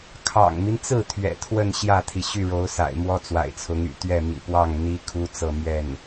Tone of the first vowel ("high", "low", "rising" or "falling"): low